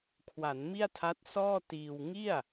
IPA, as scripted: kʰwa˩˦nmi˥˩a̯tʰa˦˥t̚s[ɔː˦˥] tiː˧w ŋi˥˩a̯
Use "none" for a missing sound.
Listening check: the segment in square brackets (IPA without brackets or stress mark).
ɔː˥˩